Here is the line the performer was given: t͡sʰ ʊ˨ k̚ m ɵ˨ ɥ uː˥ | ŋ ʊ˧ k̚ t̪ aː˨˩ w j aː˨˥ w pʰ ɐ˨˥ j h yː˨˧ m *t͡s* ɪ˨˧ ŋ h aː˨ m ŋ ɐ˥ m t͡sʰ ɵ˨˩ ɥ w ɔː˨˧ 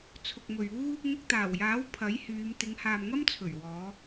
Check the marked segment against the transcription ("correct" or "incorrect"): incorrect